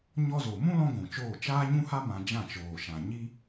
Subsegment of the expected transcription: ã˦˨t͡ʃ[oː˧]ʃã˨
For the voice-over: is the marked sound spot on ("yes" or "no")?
no